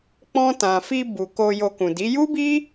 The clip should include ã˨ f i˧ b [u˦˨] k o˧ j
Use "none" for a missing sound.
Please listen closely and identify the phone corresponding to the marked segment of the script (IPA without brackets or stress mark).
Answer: u˨